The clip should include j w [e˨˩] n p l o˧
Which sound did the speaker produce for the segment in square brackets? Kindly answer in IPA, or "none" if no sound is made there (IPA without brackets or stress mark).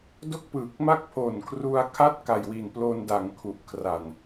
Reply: i˨˩